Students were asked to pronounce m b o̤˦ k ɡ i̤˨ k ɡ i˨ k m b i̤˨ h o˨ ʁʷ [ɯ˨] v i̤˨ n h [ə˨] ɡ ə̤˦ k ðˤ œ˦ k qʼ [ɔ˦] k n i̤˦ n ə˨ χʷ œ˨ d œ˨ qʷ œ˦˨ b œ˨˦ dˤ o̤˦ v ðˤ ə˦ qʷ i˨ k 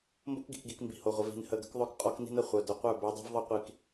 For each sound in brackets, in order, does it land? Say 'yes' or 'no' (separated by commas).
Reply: no, yes, yes